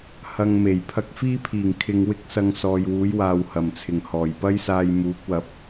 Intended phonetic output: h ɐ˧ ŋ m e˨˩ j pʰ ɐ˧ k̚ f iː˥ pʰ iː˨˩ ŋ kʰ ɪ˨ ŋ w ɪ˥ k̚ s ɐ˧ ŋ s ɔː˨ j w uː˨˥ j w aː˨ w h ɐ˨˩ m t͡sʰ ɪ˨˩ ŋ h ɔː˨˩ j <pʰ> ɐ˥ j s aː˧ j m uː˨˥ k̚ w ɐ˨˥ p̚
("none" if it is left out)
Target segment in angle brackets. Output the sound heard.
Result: p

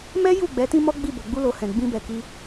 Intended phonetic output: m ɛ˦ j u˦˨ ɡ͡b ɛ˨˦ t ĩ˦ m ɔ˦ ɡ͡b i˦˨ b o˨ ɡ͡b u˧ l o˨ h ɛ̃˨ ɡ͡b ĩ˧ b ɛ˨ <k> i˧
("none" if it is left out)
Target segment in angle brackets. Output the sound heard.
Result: k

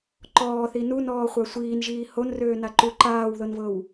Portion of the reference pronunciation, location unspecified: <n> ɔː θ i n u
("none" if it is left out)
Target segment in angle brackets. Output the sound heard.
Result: ǃ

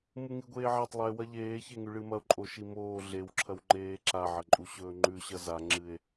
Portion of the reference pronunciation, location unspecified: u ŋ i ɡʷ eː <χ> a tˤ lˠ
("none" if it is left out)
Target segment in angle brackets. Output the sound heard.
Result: ʕ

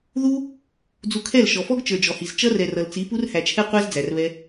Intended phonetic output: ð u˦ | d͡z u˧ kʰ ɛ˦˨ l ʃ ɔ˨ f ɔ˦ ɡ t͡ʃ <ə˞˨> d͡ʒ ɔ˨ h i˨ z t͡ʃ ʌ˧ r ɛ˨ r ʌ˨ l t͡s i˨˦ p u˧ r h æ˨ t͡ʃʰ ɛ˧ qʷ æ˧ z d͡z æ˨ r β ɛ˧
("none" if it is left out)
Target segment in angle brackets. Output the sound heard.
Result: ə˞˨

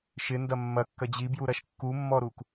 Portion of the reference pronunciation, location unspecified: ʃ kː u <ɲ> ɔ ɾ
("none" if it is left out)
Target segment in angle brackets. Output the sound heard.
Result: mː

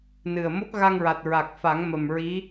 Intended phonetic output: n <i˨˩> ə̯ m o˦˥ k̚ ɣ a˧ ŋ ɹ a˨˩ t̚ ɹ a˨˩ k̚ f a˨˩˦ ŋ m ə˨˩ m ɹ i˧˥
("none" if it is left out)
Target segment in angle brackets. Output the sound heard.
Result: ɨ˨˩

